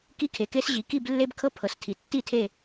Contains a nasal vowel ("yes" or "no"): no